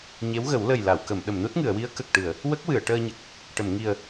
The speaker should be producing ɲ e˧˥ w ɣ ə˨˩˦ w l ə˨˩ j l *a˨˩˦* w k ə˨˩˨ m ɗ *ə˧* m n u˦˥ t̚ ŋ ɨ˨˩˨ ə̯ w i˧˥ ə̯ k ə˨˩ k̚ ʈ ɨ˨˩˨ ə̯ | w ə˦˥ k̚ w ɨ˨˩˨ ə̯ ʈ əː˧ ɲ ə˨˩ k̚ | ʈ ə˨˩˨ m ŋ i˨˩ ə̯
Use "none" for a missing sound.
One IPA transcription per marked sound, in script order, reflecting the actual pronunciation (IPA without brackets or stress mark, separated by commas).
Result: a˨˩˨, ə˨˩˨